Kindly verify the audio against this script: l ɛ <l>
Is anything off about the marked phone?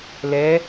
yes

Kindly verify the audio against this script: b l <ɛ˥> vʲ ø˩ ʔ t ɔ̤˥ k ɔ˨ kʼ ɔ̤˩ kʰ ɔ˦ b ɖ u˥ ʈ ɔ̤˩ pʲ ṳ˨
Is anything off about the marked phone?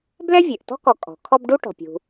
no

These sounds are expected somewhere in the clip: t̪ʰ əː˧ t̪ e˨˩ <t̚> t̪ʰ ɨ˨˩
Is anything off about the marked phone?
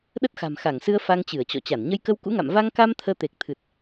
yes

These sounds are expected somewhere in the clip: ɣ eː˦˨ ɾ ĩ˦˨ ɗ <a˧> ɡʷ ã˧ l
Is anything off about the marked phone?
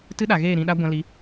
yes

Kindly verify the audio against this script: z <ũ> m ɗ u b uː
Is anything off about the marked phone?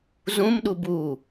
no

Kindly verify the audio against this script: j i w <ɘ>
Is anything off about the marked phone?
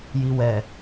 yes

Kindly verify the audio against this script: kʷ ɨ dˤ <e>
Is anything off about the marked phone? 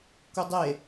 no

